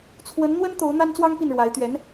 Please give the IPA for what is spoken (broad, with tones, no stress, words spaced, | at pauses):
t͡sʰwə˧˥nn̪wə˥n t̪o˧˥ʊ̯ n̪a˥nt͡swɑ˥ŋpi˥˩nɻwa˧˥ɪ̯ t̪ɥɛ˧˥n